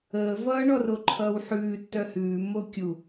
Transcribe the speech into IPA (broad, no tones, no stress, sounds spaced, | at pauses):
əː v ʌː ɳ ɔ r o ǃʰ ʌː w ħ ʉː tː œ h ʉː mː o kʲ u